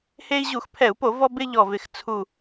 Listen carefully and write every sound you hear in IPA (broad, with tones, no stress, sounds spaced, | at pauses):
h e˦ i̯ ʑ u˧˩˧ x pʰ ɛ˧˩˧ u̯ p o˧˩˧ v ɔ˦ b ɪ˦ ʎ ɔ˨˩ v ɪ˨˩ x t͡sʰ u˨˩